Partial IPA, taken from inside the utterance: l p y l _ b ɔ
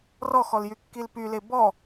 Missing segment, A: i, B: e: B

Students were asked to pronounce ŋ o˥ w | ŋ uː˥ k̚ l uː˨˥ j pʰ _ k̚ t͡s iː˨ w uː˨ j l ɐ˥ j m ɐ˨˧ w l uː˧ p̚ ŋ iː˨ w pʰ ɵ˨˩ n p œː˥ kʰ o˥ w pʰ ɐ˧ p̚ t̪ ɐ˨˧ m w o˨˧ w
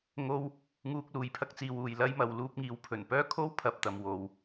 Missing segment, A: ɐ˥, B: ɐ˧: B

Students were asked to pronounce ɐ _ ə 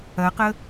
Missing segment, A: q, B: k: A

